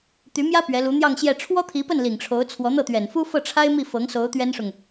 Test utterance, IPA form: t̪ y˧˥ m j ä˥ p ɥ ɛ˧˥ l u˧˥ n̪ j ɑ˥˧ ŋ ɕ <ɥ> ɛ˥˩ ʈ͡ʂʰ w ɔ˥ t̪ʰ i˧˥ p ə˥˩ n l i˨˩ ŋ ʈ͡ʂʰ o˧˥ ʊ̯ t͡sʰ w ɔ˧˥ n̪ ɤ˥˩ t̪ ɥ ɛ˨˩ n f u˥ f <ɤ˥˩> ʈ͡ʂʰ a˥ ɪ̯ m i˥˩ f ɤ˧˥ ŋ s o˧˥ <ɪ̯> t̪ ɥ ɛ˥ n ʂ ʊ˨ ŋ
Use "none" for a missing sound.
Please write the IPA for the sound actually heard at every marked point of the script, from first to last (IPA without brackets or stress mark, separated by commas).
j, ɤ˥˩, ʊ̯